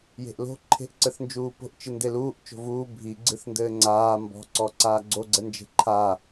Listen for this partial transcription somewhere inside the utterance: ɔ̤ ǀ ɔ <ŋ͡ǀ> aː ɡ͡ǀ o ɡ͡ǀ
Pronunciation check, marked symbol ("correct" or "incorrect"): incorrect